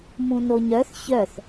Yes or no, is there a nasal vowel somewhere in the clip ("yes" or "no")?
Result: yes